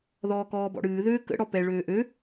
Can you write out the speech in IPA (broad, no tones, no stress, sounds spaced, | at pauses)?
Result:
ð ɔː k ɔː b ɔ̰ ɽ ɨː ð øː k ə̰ ɽ ɔ p ɛ ɭ øː ʔ ø